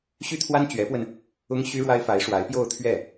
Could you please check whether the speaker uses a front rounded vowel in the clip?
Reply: yes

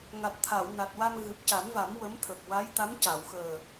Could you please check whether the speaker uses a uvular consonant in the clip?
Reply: no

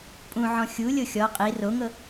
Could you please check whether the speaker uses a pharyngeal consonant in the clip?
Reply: yes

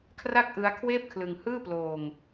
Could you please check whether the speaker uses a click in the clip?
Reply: no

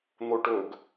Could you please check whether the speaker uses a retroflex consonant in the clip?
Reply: yes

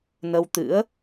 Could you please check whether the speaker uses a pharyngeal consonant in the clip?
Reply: no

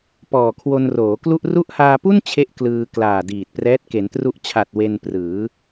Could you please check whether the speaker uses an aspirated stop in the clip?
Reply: yes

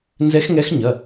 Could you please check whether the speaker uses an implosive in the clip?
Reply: no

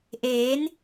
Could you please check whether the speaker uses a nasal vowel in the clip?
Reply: no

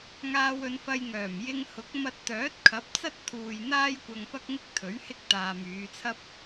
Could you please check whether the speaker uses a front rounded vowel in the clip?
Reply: yes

